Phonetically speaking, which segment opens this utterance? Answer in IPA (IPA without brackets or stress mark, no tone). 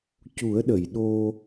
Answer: c